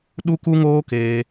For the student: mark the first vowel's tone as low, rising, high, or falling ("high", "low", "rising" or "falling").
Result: high